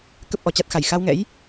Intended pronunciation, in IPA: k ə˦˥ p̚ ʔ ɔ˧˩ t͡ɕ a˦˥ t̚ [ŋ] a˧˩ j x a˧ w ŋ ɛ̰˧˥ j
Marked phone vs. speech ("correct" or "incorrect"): incorrect